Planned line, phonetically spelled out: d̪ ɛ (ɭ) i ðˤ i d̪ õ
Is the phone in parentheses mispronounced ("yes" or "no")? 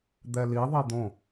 yes